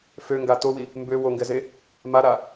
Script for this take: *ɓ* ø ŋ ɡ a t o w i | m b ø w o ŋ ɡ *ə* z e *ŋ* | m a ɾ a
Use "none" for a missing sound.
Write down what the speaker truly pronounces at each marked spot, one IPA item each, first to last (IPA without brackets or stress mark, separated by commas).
f, ɛ, none